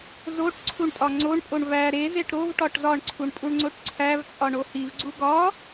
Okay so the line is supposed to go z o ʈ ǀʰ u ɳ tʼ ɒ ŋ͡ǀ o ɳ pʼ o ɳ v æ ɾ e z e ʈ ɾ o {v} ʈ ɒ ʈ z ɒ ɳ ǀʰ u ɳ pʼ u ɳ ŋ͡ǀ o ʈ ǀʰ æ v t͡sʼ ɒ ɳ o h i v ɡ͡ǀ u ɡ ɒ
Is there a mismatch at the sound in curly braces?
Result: no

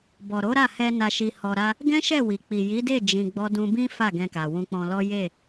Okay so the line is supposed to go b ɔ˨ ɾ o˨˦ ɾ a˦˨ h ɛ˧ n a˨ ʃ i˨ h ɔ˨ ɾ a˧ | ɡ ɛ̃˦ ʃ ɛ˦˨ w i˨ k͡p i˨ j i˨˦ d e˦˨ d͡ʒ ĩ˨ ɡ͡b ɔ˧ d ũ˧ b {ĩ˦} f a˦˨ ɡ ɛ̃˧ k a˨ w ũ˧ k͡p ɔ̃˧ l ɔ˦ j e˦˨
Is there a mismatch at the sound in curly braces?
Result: no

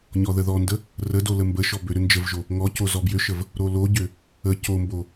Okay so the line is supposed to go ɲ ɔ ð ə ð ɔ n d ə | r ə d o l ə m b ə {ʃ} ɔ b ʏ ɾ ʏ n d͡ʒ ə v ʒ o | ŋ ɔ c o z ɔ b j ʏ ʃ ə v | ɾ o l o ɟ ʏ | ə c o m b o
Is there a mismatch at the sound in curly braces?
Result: no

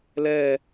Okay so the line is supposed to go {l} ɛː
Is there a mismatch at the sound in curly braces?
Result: no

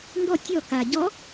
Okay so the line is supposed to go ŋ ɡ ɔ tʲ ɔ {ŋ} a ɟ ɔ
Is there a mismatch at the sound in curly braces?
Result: yes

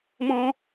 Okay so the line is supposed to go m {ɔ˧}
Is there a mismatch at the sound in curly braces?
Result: yes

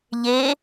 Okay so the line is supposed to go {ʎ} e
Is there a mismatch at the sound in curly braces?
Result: no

